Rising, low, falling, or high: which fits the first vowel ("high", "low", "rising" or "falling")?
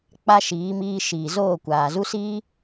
high